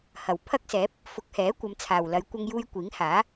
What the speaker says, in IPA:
h ɐ˨˩ w pʰ ɐ˥ k̚ s ɛː˨˥ p̚ | f ʊ˨˥ k̚ h ɛː˨˥ kʷ ɐ˨˧ m t͡sʰ aː˨ w l ɐ˨˧ j kʷ ɐ˧ ŋ j uː˧ j kʷ iː˨˥ ŋ h aː˨˥

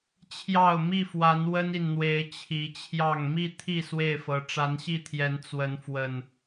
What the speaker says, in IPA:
t͡ɕʰ j ɑ˥˨ ʊ̯ m i˥˨ f w a˨˦ n w ə˦ n i˨ n n̪ w e˨˦ ɪ̯ t͡ɕʰ i˨˦ t͡ɕʰ j ɑ˥˨ ŋ m i˥˨ t̪ʰ i˥˨ s w e˥˨ ɪ̯ f ɤ˨˦ ʈ͡ʂ a˨˦ n ɕ i˥˨ t̪ʰ j ɛ˨˦ n t͡s w ə˨˦ n f w ə˨˩ n

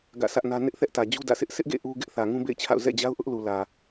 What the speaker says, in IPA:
ɡ ä̰˦˨ sʰ ä˦ ʔ n ä˦ n ɪ˦ ʔ θ ɛ˦ ʔ t ä˨ d͡ʑ u˦ d ä̰˦˨ sʰ ɪ˦ ʔ s ɪ˦ ʔ ɡ ḛ˦˨ ʔ u˦ ɡ ɪ˦ ʔ θ ä˨ ŋ ũ˦ b ḛ˦˨ ɪ̯ t͡ɕʰ a̰˦˨ ʊ̯ z ɛ̰˦˨ d͡ʑ a˦ ʊ̯ ʔ ʊ˦ ʔ l u˨ l ä˨

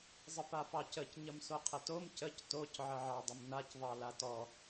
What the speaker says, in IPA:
zˤ ə p a p ɑ c ə c ɲ ə m s o qʰ ə t o m c ə c t o c ʕ ə ʕ ɑ dˤ ə m n a c ðˤ ɑ l a t ɔ

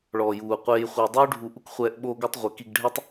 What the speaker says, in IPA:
ɭ ɔː˨ j uː˨ qʷ eː˧ j χʷ i˨ dˤ uː˦ ɖʱ u˧ ʔ u˦ k χʷ ɛː˧ ʔ ɓ oː˧ ɡ u˧ tˤ ʁʷ e˨ k i˧ ɡ ɖʱ ɛ˦ tˤ

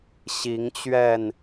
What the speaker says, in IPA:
ɕ i˨˦ ŋ t͡ɕ ɥ ɛ˥˨ n

